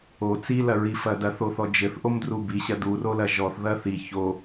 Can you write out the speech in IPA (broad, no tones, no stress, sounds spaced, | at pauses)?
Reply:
o t͡s i l ɐ ɹ i f ɐ d ɐ θ o θ ɔ d͡ʒ ɘ θ ʔ o m d r u b i ɕ ɐ d u r o l ɐ ʒ ɔ θ ð ɐ θ i ç o